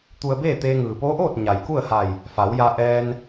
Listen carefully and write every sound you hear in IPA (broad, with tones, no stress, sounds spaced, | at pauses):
t̪ u˧ ə̯ b eː˥˨ t̪ eː˧ ŋ ɯː˩ p oː˧˥ ʔ oː˥˨ t̚ ɲ a˩ j k u˥˨ ə̯ h a˧˩ j | f a˩˧ w j a˧ ʔ ɛː˧ n